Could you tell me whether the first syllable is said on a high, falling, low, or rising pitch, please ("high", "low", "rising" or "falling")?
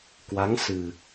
rising